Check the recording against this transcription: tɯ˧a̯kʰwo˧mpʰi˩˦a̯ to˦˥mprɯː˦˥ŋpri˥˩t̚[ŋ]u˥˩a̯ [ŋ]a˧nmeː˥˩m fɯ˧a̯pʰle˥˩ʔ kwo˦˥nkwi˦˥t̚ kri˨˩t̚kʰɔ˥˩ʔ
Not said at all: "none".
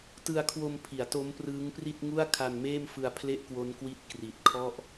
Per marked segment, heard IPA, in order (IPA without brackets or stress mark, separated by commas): ŋ, kʰ